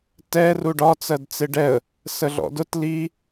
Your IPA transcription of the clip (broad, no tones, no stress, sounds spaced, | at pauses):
t ɛ r u ɖ ɒ t͡s ɜ d t͡s ɪ ɖ ɛ ə̯ | s ə ɮ ɔ̰ d ʊ t l i